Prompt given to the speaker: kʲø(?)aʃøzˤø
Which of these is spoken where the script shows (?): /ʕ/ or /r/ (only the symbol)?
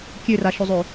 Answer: r